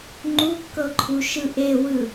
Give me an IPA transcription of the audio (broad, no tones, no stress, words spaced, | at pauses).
ŋ͡ǃukːɤǃʰuʃɯ ʔewɯ